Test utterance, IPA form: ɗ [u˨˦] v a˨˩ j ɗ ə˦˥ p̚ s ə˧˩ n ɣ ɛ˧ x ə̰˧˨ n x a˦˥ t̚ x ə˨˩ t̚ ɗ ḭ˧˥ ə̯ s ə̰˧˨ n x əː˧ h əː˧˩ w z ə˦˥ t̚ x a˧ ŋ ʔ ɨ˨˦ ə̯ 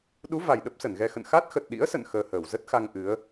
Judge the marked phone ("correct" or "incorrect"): correct